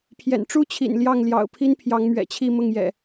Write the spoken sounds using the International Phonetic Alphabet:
pʰ j ɛ̰˨˩ n ʈ͡ʂ u˦ t͡ɕʰ ḭ˨˩ n l j ɑ˥˨ ŋ l j ɑ̰˨˩ ʊ̯ pʰ i˦ n pʰ j ɑ˨˦ ŋ m ɥ ɛ̰˨˩ t͡ɕʰ i˥˨ m ʊ˥˨ ŋ j ɛ̰˨˩

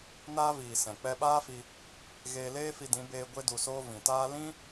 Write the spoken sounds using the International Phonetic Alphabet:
n aː˦ v iː˨ s ɛ̃˨ k͡p ɛ˧ ɓ aː˦ f i˧ | ɣ eː˧ l eː˦ f i˧ d ĩ˨˦ b eː˧ ɡʷ e˧ d u˨ s oː˧ v ĩ˨ t aː˦ l ĩ˦

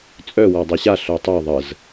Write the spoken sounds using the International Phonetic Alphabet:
t͡sʼ œ w a dˤ ɛ ɕ a ɬ œ tˤ œ ðˤ ə z

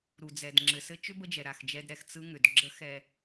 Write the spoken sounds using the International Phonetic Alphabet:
ɾ u˨ d͡z ɛ˨ d ŋ͡ǁ ɘ˨ s ɘ˦ t͡ʃ ʏ˦ b ə˦ d͡ʒ ɛ˨ ɾ a˦˨ x d͡ʒ ɛ˦ d ɾ ɛ˨ x t͡s ɯ˦ ŋ ʏ˨ d ɡ͡ǁ ə˦ x ɛ˨

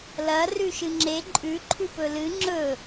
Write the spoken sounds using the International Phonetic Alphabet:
l ɐ r ʉ ʃ ɨ ŋ͡ǁ e ǃʼ ʉ ǃʰ ʉ p ɵ l ɨ ŋ͡ǁ ɵ

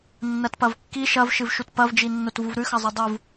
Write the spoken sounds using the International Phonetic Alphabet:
nː ɐ t p ɐ v kː i ʃ ɐ v ʃ ɨ v ʃ u t p ɐ v d͡ʒ i nː o t v u v ɾ ʉ x ɐ zˤ ɵ dˤ u v

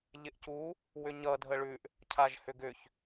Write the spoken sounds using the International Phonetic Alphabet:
ʎ ɪ ʔ c u | w ʏ ɲ ʌ dʱ ə ɭ ʉ ʔ | cʰ a ʒ h ʏ ɡ ʏ ç

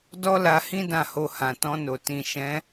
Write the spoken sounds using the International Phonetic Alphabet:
d ɔ˦ l a˧ h ĩ˦ d ã˦˨ h o˧ h ã˨ t ɔ̃˧ n o˨ t ĩ˨ ʃ ɛ̃˨˦

